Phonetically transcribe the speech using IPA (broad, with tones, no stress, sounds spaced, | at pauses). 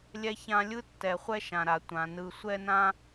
lʲ ɛ˦ ç ã˦ lʲ ɯ˥ tː ɛ˩ χʷ ɛ˥ ʃ ã˩ ɾ a˩ tʷ ã˩ n ɯ˨ sʷ ɛ˥ n ã˥